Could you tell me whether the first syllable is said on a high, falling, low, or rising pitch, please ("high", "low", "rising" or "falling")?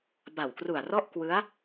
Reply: low